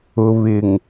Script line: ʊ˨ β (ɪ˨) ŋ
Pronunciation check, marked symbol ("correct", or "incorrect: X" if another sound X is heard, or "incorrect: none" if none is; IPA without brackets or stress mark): correct